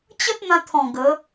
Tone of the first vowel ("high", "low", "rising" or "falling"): high